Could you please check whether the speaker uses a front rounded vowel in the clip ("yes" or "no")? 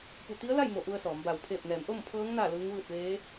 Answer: no